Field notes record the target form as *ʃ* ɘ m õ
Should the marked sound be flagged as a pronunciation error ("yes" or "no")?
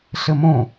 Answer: yes